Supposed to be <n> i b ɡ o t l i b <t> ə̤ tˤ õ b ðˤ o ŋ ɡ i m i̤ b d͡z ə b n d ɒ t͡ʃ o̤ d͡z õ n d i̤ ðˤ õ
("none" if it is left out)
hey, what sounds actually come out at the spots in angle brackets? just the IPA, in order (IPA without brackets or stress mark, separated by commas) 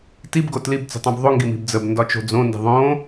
t, t͡s